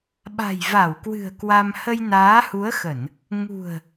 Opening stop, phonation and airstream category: implosive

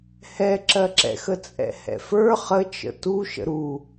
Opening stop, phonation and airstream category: click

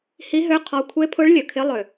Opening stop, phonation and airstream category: aspirated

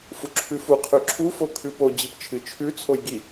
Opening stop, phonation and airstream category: click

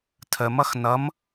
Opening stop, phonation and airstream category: aspirated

